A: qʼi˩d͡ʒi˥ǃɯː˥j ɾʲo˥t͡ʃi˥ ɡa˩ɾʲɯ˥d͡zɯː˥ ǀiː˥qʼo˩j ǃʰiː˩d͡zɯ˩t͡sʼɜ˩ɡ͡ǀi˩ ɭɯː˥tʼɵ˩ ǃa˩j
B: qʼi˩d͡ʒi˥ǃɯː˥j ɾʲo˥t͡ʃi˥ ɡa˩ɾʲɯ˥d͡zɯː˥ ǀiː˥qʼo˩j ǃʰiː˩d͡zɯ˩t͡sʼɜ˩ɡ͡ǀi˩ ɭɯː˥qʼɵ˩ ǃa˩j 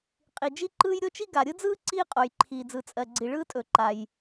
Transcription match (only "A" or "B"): A